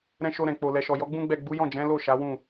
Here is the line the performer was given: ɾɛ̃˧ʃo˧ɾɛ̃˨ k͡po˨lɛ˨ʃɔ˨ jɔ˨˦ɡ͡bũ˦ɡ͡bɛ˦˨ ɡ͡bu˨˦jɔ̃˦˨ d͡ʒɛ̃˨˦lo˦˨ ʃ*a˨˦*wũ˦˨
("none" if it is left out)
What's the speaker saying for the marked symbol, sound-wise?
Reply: a˨˦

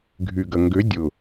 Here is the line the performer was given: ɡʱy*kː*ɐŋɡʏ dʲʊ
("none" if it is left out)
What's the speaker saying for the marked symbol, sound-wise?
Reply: ɡ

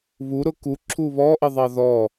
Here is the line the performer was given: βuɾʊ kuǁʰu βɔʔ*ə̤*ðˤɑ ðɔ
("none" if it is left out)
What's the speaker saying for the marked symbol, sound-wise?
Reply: ə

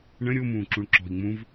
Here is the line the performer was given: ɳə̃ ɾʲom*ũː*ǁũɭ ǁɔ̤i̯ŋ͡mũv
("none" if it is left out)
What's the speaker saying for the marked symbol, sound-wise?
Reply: ũː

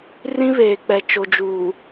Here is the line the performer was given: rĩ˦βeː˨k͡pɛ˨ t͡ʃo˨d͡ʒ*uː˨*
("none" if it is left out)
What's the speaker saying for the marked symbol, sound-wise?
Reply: uː˨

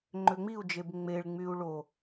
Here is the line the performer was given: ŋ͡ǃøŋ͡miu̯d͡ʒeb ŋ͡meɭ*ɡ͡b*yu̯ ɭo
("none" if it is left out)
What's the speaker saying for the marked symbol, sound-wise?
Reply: ŋ͡m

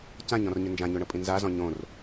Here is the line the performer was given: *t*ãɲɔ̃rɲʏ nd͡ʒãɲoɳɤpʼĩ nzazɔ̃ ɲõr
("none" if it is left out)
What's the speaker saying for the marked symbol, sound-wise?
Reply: c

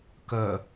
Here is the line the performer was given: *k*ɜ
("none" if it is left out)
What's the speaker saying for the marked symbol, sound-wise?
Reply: k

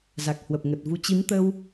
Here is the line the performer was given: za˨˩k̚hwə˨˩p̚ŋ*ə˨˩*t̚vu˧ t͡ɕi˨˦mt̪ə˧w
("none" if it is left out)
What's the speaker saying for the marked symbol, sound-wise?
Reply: ə˨˩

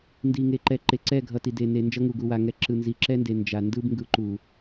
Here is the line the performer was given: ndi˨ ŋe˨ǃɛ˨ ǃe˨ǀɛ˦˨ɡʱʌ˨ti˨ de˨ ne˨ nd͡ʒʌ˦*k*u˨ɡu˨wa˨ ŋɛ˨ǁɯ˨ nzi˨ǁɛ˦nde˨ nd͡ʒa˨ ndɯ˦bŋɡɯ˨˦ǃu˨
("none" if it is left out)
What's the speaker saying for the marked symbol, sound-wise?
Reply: ŋ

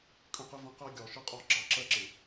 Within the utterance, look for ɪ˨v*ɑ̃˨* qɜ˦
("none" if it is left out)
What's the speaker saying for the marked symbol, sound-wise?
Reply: ə̃˨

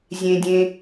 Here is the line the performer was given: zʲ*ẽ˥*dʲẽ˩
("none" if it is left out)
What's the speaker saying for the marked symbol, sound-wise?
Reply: ẽ˩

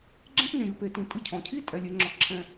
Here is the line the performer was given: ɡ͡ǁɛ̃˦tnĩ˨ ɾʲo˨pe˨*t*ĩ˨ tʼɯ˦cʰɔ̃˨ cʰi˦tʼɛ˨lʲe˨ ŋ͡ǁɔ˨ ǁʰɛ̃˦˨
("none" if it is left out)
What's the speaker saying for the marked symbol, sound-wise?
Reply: t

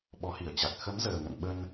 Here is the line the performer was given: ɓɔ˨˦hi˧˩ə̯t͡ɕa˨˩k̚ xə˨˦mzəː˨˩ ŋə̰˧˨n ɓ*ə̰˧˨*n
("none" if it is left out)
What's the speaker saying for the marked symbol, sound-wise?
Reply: ə˧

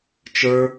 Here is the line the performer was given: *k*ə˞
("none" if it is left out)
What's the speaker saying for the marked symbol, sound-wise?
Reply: t͡ʃ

